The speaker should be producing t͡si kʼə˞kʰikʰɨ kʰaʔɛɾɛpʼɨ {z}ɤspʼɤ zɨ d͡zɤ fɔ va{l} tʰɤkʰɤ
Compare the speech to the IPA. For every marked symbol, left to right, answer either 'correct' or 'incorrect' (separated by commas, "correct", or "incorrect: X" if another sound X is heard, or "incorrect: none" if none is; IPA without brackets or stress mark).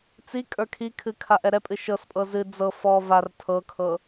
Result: incorrect: ʃ, incorrect: r